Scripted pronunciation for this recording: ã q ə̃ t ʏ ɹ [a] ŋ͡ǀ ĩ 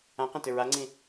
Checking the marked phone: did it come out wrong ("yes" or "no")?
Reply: no